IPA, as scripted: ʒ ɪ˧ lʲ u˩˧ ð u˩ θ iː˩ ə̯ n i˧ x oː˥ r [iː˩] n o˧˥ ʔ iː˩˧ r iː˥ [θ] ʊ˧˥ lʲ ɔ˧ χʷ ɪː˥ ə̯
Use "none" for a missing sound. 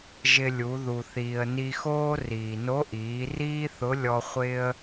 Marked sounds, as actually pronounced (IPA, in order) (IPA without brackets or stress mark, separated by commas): iː˩, θ